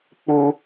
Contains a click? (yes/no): no